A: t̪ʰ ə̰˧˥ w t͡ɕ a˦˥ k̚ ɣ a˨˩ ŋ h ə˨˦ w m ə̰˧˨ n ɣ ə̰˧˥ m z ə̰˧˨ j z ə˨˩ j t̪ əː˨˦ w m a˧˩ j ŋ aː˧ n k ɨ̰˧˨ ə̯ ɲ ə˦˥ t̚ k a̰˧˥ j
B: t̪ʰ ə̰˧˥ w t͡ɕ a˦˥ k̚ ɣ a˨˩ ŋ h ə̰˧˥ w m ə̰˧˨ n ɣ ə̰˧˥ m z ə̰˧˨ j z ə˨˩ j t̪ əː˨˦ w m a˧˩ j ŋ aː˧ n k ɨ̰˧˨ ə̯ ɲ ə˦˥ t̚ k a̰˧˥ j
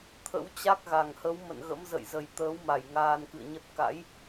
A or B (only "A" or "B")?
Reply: A